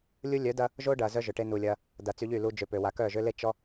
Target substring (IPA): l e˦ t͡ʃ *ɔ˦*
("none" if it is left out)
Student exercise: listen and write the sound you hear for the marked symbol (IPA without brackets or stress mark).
ɔ˦